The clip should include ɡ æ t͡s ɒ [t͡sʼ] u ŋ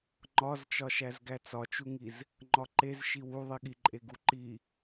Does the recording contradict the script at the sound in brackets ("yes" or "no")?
yes